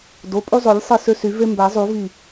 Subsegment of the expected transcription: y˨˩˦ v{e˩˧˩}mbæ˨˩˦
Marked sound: incorrect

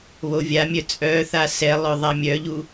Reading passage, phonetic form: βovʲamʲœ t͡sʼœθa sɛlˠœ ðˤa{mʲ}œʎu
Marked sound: correct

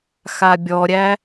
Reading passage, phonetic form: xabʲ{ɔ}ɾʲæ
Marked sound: correct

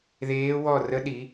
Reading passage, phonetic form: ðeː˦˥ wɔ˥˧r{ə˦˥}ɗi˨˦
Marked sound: correct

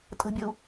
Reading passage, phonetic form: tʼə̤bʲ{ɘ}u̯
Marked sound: correct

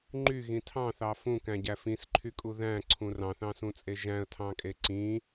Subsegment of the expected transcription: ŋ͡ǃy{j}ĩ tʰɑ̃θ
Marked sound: incorrect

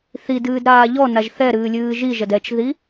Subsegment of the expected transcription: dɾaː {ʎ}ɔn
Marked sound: correct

